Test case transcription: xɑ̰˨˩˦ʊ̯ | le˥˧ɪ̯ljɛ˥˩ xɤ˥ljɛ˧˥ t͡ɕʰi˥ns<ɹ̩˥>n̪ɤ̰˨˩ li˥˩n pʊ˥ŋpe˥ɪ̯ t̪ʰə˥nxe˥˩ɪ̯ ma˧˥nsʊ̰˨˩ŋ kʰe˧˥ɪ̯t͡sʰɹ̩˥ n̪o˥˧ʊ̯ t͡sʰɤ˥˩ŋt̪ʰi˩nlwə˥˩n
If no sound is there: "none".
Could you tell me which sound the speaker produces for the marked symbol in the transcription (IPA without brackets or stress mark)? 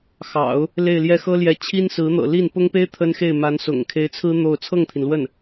ɹ̩˧˥